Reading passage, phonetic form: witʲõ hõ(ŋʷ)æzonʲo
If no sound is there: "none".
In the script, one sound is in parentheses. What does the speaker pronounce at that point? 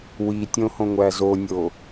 ŋʷ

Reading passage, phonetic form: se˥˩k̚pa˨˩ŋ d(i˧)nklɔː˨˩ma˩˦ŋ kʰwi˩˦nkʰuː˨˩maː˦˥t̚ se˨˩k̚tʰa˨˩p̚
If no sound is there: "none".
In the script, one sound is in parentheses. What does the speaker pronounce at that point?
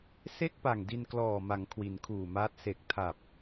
i˧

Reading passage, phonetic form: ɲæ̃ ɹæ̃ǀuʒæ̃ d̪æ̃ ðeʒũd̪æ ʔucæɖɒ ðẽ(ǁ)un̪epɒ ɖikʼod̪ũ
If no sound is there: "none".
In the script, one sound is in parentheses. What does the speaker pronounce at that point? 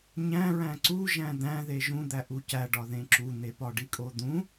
ǁ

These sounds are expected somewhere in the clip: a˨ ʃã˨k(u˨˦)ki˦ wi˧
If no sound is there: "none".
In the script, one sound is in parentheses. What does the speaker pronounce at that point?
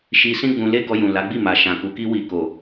u˨˦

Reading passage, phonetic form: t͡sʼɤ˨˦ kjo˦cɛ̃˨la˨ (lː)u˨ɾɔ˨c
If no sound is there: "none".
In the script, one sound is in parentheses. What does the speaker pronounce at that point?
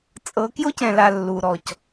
lː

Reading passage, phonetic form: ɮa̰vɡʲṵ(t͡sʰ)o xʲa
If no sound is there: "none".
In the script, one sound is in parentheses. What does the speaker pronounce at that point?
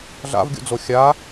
d͡z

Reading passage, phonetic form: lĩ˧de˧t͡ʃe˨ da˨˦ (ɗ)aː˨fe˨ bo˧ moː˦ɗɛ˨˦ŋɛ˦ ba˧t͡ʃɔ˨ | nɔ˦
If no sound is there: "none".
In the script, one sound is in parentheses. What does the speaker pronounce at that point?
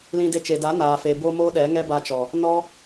n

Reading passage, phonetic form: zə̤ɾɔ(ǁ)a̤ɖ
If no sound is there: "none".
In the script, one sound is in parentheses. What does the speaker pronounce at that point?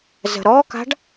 k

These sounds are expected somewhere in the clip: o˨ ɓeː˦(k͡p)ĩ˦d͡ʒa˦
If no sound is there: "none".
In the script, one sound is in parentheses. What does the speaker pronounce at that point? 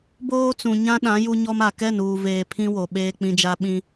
k͡p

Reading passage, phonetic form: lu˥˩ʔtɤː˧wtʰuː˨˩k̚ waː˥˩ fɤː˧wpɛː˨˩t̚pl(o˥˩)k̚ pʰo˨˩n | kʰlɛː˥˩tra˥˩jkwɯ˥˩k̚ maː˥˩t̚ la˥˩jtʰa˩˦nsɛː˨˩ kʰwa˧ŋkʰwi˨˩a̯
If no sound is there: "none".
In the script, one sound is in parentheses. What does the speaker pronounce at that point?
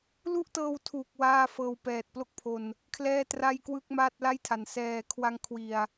o˥˩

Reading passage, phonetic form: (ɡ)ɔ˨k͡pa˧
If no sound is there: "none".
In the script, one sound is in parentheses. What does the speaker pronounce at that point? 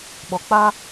ɓ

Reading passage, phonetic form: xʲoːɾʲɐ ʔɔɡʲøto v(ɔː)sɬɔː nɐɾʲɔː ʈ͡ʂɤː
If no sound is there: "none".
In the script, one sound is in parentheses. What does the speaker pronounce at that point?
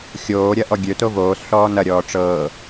oː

